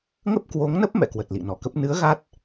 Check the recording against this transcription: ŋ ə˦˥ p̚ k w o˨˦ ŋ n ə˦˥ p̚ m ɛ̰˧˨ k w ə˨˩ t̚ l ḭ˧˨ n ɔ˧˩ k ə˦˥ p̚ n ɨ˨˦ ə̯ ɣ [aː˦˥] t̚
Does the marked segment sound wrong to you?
yes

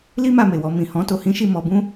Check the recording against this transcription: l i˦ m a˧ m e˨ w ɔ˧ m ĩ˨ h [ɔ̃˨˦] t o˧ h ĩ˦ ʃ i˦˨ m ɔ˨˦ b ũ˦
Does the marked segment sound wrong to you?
no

